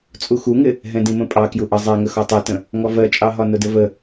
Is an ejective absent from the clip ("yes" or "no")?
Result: no